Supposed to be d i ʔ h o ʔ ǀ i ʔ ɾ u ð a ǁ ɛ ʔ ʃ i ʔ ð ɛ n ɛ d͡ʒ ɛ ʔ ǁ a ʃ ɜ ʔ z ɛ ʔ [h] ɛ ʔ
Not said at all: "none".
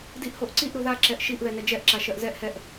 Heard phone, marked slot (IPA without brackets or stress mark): h